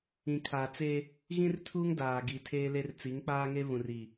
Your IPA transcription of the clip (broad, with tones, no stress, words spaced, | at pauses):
ĩ˨kʰaː˨t͡seː˦ | ɣĩ˦rtʰu˦ŋ daː˨ɡi˨ tʰeː˦le˦r t͡si˨˦ŋk͡paː˦ŋe˦ βũ˨riː˨